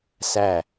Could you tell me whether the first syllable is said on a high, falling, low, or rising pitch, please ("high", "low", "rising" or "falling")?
falling